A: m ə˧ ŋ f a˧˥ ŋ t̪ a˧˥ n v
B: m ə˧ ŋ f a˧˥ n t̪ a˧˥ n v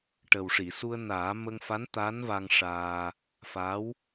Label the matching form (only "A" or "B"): B